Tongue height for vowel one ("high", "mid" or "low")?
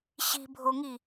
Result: high